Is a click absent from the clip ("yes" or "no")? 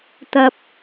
yes